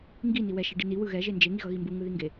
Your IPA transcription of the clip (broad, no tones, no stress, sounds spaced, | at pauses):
ŋ ɡ i n i w ɛ ʃ e ɖ i n i w ɯ ɣ ɛ ʒ e n d͡ʒ e ŋ i ɣ ʌ ɣ i m b u ŋ ɯ ð i ŋ ɡ e